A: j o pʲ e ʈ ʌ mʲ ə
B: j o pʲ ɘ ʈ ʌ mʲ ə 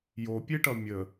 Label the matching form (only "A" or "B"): A